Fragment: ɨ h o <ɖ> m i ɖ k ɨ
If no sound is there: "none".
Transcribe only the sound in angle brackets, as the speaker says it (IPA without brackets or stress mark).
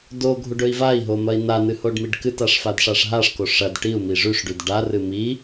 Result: ɖ